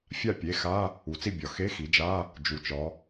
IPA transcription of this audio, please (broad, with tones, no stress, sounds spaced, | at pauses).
fʲ a˥˨ pʲ e˩˧˩ x a˧˥˧ | u˩˧ t͡s i˥˨ bʲ ɒ˩ x e˧˥˧ x i˩˧ d͡ʒ a˧˥˧ | d͡ʒ u˩ t͡ʃ ɒ˩˧